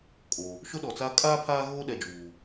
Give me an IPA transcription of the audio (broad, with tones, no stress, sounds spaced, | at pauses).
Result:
kʼ o˨ | ʃ ʊ˦ ɗ ɔ˨ t͡s a˦ kʼ aː˦ pʰ aː˦ ɣ oː˦ ɗ ɛ˨ d͡ʒ uː˨